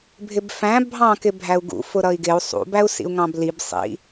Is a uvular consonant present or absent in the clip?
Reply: absent